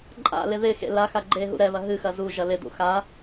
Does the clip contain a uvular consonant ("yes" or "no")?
no